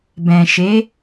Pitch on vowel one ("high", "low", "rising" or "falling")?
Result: low